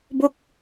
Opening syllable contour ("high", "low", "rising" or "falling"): falling